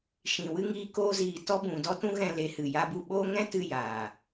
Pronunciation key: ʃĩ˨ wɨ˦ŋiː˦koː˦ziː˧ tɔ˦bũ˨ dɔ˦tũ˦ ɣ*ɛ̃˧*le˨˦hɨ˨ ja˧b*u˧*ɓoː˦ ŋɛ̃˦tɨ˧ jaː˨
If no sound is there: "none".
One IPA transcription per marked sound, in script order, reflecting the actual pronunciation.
ɛ̃˧, u˧

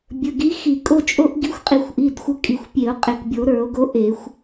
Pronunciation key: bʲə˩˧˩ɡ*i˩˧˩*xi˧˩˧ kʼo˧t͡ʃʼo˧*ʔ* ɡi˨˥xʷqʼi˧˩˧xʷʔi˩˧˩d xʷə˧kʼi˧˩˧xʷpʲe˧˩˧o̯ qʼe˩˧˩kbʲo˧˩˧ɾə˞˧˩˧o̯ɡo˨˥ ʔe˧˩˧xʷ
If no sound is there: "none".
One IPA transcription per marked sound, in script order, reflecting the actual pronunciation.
i˨˥, ʔ

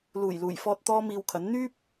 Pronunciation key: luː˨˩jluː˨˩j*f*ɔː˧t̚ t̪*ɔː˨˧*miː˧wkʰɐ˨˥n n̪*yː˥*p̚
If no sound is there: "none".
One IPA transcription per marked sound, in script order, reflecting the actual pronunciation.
f, ɔː˥, yː˥

